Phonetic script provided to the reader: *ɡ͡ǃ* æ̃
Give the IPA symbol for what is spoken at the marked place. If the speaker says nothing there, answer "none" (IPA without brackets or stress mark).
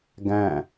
ɡ